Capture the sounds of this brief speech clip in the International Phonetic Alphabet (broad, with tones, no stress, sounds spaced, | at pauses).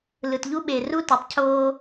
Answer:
l ɯ˨ t ʎ u˦ ɓ e˨ r u˦ t ɯ˨ tˤ cʰ oː˦